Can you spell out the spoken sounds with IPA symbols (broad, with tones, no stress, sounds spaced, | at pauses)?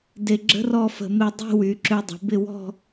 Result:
d e˧ ɡ͡ǁ ə̤˥ r ɔ˥˧ f ə̤˧ m e˧ dˤ e̤˥˧ w y˩˧ ǁ ø˧ dˤ ə̤˩˧ b ɪ˥˧ w ɔ̤˥˧